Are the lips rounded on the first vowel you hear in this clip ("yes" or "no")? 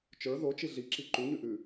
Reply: no